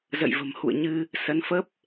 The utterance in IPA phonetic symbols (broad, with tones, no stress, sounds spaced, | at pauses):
z ə̰˧˨ j v ə̤˨˩ m h ṵ˧˨ ə̯ ɲ ɨ˧ | s ə˨˦ n f ə˦˥ p̚